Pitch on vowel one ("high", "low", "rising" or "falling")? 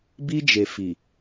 high